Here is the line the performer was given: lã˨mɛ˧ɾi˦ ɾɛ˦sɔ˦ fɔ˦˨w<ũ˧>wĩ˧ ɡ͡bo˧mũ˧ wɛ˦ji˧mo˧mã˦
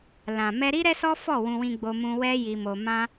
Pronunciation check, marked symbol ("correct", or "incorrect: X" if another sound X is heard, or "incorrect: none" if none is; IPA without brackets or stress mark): correct